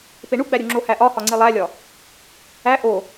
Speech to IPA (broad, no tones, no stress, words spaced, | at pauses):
peɳuɡ͡bæɾʲu ŋ͡ǁohæʔɒ hɒŋ͡ǀilˠælʲɒ | æ ʔo